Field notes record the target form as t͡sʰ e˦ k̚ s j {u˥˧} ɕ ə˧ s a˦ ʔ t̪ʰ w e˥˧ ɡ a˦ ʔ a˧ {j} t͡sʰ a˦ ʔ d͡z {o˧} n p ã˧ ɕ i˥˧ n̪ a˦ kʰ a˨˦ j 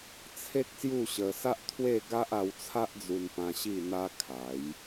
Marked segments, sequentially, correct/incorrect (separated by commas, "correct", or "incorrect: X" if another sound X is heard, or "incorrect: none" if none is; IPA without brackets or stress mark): correct, incorrect: w, incorrect: u˧